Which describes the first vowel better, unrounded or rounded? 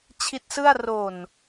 unrounded